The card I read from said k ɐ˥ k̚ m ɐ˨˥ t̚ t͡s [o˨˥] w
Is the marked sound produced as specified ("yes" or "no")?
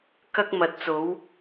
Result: yes